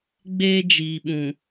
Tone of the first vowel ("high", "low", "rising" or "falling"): high